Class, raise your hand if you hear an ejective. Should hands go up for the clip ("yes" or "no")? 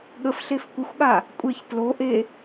yes